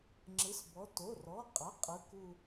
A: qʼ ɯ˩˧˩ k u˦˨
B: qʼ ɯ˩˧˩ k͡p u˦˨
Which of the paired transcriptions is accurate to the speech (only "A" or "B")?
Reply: A